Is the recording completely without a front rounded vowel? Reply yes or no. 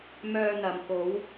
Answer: no